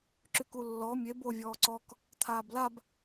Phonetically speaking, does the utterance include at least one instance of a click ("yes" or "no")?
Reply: yes